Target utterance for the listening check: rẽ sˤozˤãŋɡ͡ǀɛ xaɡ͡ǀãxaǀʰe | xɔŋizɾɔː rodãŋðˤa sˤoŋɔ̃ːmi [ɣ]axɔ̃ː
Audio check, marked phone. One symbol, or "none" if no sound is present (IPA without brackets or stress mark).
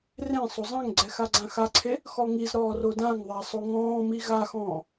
ɣ